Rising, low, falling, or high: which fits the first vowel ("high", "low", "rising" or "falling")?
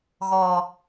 low